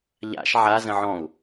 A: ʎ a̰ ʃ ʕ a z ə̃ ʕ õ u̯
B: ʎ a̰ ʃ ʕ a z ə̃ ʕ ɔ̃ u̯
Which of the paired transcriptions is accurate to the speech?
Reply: B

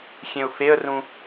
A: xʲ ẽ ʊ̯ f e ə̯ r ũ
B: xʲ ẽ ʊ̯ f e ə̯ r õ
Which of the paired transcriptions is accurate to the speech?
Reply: A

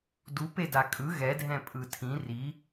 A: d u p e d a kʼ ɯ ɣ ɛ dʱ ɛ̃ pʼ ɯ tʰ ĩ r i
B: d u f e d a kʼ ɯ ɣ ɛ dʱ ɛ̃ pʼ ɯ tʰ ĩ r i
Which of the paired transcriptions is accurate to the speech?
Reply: A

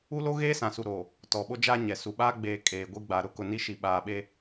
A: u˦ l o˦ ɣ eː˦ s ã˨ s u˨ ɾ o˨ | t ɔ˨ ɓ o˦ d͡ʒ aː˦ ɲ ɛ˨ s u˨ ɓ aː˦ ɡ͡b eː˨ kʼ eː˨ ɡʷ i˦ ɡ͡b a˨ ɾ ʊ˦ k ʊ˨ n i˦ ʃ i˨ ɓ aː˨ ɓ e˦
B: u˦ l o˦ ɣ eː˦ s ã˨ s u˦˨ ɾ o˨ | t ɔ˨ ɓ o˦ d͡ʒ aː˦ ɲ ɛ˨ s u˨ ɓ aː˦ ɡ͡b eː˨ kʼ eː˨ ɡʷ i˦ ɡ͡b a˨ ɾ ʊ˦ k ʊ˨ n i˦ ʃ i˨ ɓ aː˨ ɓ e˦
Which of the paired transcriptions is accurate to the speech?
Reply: A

